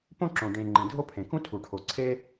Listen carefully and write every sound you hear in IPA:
põ˥ǁõ˨ ɖẽ˨ ŋ͡ǃĩ˩dʱo˥pʰẽ˩kũ˥ tʰu˩ʈʰo˩ ǀʰe˦

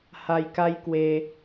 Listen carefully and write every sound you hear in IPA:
ha˧jka˦jkwe˧

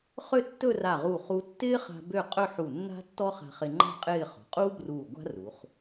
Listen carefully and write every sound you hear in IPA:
χø˥˧tːɵ˥˧ra˧˩ʁu˧˩ χu˧tːɪː˥χa̤˧ bø˥˧ qʼɵ˥˧ħu˧˩nːa̤˥tːɔ˥ χa̤˧χɪ˧ŋ͡ǃa̤˥˧ qʼɪː˥˧χɔ̤˩˧ qʼuː˥bruː˧˩ ɡʷa̤˥ru˩˧χ

